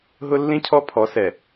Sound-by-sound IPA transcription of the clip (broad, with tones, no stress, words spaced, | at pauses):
ɦʊ˦lːĩ˦cʰɔ˦ pʰɔ˨˦ sɛ˨